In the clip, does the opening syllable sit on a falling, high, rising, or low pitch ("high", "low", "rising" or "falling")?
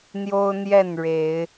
high